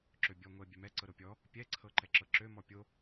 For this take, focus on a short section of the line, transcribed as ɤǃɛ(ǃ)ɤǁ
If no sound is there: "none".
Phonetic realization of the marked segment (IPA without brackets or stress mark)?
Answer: ǁ